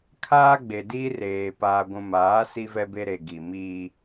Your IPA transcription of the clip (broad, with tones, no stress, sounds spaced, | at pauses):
kʰ aː˦ ɡ͡b e˨ d iː˦ r eː˨ p aː˨ ɡʷ ũ˨ m aː˨˦ s i˦ v ɛ˦ b e˦ ɾ e˨ ɡ i˨ m iː˦